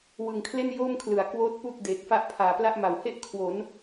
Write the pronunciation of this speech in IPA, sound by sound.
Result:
w ɯ˨˩ ŋ kʰ l e˥˩ n j oː˥˩ m kʰ l ɯ˩˦ a̯ k w oː˦˥ t̚ p uː˥˩ k̚ d eː˨˩ k̚ f a˥˩ ʔ pʰ aː˨˩ p l a˥˩ ʔ m a˨˩ w h e˥˩ ʔ kʰ w o˩˦ n

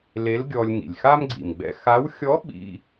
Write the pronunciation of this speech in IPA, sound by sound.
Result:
l e˧˥ l ɡʲ ɔ˧ lʲ ŋ ḭ˩ lʲ x a˥ m ɡ͡ǀ ḭ˩ m ɡ͡b ɛ̰˧ x a˧˥ w xʲ ɔ˧˥ ɓ ḭ˧

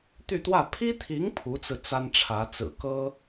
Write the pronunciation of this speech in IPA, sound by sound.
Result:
t̪ y˥˧ t̪ w ä˥˩ pʰ i˥ t̪ʰ i˧˥ ŋ pʰ u˧˥ t͡s ɹ̩˧ t͡s a˥ n ʈ͡ʂʰ ä˧˥ t͡s ɹ̩˨˩ k ɤ˥

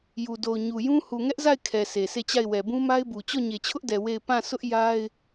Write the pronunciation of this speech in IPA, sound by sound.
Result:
j u˨ d o˨ ʊ̯ ɲ u˨ j ũ˦ h u˨ ŋ ɛ˦ ʔ z a˦˨ ɪ̯ kʰ ɛ˨ s e˨ s e˦˨ t͡ɕ a˦˨ ɪ̯ w ɛ˨ b ũ˦ m a˦ ɪ̯ b u˨ t͡ɕ ɔ˦˨ ɲ e˨ t͡ɕʰ ʊ˦ ʔ d ɛ˨ w e˦˨ ɪ̯ p ã˦˨ s ʊ˦ ʔ j a˦ ɪ̯

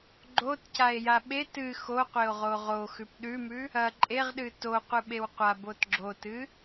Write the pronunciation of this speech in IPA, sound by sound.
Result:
ɡ͡ǃ o t c a e̯ j a ɓ e t ɨ x o qʷ e o̯ ʁ o ʁ o x ʉ p ɗ ʉ m ʉ | ɐ ǃʼ e ʁ ɗ ɨ t o qʷ ɨ ɓ e w qʷ a b o t ɡ͡ǁ o t ɨ

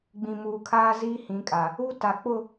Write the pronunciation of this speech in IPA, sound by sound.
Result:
ɡ͡b ĩ˨ m uː˨ kʰ aː˦ z iː˦ h ĩ˨˦ kʼ a˨ | u˦ t a˨ k͡p ʊ˦˨

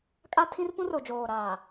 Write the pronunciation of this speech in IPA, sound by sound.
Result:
kʼ a˦ tʰ ĩ˦ r p ũ˦ r ʊ˨ d͡ʒ oː˨ ɾ aː˨

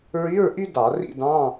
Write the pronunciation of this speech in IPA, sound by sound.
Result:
ɹ y˧˥˧ ɹ ʔ y˥ d ɑ˧˩˧ r ḭ˥˧ d ɑ̃˧˥˧

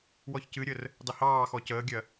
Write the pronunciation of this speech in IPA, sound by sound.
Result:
w ɔ ç c ɨ ɾʲ ə r | dˤ ə h ɑː x ɔ c əː ɡʲ ɜ

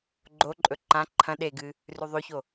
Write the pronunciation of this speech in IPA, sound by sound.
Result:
ɡ͡ǃ o ǃʼ ɵ ǃ ã ǃʰ ɐ̃ ɗ e ɡ ɨ | r ʉ ðˤ ʉ ç o

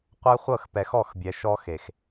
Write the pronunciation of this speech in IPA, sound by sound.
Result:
qʷ æ˦ χʷ ɤ˦˨ x p ɛ˨ x ɔ˦˨ x bʲ ɛ˨ ʃ ɔ˦ x e˨ x

